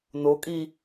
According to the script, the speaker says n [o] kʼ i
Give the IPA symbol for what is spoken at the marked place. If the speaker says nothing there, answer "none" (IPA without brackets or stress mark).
o